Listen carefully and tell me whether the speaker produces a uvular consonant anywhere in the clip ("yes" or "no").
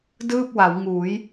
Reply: no